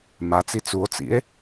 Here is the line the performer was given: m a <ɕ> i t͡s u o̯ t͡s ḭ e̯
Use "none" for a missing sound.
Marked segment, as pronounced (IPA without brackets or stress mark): t͡s